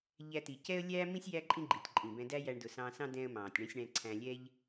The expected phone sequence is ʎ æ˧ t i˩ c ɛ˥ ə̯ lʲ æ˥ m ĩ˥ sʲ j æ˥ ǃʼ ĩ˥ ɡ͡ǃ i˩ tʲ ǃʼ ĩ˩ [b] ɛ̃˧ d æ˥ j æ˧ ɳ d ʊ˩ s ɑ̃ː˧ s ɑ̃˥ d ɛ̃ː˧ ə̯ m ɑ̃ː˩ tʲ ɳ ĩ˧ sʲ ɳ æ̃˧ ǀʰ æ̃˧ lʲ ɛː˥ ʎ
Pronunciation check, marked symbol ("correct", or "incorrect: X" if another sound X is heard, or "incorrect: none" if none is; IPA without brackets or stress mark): correct